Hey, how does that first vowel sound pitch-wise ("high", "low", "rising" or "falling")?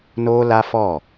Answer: high